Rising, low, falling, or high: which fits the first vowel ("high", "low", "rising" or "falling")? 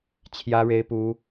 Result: high